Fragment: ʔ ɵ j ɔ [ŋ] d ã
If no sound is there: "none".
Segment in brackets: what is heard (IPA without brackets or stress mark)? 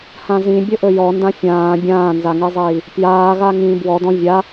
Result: n